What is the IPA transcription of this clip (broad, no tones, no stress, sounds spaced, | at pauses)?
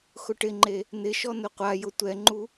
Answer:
x ʊ ʈ ɪ ŋ͡ǃ e | n ɪ ʃ ɔ n ʊ qʷ a j ʊ tʷ ɛ ŋ͡ǃ u